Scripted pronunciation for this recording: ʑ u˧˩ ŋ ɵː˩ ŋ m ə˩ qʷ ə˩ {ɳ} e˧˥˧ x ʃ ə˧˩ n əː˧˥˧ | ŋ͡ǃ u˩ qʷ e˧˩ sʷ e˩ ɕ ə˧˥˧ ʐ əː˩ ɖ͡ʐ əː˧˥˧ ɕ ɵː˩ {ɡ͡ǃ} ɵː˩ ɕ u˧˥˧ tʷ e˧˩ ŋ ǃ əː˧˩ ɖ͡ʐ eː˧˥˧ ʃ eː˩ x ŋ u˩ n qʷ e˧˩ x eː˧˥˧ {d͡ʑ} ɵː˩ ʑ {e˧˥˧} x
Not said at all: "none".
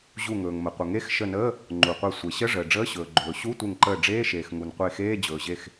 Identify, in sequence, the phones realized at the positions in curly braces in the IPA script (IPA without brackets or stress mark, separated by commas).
ŋ, ɡ͡ǃ, d͡ʑ, e˧˩